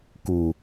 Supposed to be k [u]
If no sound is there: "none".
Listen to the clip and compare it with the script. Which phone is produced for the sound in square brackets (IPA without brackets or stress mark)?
u